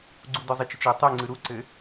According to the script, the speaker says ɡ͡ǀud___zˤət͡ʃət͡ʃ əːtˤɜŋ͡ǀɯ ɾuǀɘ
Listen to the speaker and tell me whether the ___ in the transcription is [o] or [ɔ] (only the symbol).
ɔ